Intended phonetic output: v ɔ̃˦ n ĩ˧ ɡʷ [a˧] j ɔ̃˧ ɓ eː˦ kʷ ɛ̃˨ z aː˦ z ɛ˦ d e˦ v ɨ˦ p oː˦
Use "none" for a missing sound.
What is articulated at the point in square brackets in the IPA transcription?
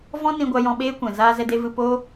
a˧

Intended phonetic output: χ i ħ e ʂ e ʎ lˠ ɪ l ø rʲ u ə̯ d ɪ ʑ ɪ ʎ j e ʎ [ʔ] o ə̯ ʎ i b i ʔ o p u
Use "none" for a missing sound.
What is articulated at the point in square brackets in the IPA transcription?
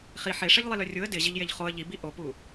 χ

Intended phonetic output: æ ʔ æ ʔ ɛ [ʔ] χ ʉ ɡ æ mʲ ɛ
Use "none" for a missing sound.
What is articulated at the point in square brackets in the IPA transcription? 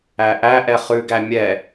none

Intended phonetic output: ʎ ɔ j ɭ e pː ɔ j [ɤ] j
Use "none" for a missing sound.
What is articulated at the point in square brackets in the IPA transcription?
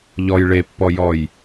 ɔ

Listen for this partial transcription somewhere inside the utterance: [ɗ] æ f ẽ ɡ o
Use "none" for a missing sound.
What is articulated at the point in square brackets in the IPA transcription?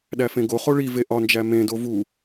ɗ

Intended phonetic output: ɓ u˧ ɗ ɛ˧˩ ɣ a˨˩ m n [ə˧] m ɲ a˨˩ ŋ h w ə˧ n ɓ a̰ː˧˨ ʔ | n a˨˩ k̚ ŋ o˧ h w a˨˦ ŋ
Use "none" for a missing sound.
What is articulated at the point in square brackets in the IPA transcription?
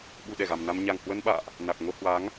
a˧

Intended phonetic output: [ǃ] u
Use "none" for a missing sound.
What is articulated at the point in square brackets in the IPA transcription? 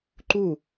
ǃ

